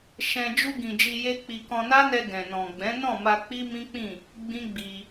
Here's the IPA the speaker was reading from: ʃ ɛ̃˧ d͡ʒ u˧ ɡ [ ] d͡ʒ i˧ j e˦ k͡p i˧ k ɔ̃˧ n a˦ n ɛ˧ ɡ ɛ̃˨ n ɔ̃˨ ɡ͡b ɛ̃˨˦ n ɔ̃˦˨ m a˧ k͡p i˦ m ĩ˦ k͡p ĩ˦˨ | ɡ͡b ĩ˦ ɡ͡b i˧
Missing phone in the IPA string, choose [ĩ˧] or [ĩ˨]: ĩ˨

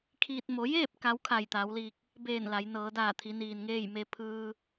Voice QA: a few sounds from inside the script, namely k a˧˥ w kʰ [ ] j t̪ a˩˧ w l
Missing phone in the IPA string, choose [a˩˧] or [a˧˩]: a˧˩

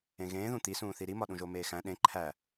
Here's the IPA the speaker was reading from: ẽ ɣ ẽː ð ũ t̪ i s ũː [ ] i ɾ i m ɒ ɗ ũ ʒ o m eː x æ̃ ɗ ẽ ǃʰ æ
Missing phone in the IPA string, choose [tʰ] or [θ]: θ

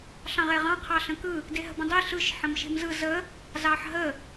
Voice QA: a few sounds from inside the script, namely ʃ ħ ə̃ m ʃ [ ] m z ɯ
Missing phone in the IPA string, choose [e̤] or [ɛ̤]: e̤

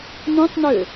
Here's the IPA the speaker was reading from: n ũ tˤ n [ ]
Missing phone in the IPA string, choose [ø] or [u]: ø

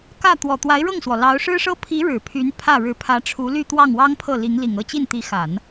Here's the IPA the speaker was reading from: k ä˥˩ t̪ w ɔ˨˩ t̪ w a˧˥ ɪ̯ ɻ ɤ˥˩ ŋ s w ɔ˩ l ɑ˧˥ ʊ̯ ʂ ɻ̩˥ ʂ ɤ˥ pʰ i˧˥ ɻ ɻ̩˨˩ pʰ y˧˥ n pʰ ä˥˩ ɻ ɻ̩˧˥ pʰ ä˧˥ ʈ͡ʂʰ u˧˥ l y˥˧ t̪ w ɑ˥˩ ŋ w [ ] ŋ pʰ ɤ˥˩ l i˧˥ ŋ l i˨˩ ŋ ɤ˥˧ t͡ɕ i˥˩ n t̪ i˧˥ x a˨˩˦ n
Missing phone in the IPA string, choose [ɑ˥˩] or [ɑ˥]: ɑ˥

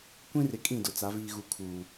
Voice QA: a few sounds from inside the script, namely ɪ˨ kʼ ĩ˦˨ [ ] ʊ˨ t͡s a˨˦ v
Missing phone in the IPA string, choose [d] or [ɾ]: d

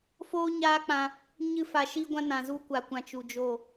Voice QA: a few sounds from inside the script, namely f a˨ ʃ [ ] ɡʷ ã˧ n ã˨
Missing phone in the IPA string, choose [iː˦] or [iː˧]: iː˧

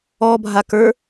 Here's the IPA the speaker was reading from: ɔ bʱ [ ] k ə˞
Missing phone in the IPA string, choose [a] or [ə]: a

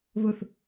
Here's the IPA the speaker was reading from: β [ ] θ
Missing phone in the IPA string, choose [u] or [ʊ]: ʊ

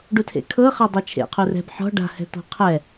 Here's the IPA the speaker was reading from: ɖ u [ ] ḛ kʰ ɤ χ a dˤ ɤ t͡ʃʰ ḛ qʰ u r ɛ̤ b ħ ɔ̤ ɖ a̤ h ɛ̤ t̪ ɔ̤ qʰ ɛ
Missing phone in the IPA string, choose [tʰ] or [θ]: tʰ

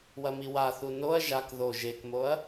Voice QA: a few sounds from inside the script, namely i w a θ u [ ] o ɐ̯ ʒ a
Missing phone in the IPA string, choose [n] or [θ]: n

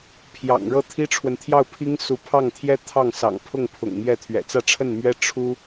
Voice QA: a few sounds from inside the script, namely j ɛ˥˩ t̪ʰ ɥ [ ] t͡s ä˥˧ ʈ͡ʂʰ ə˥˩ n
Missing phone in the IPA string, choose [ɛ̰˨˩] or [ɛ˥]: ɛ̰˨˩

